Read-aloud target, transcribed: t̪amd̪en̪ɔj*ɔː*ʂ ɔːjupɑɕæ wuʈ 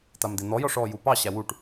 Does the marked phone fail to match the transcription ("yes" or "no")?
yes